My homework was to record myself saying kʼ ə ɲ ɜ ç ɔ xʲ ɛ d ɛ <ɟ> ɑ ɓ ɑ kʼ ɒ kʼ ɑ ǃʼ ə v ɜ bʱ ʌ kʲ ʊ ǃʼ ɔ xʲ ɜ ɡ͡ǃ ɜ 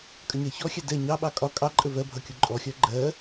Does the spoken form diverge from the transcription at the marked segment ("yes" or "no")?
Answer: yes